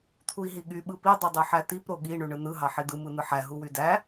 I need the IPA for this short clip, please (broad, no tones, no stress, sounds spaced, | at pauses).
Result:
t̪ʰ u i̯ ɦ i ɠ y ɓ ɯ p i dˤ u dˤ ø ħ æ t̪ i p ɾ o ɠ i ɳ y ɳ ɯ n̪ ɯ ɦ ɑ ħ i d̪ ɯ m ɯ n̪ ɯ ħ æ ɦ u w y d æ